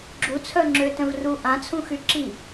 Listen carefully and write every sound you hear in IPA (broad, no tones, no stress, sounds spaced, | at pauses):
ɡ͡ǁ u t͡sʰ œ ŋ͡ǁ ø t œ̃ v r u ʔ ã t͡sʰ ũ x y ǁ i